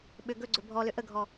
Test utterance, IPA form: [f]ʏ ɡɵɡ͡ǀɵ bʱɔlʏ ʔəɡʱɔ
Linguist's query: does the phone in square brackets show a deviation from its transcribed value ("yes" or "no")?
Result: yes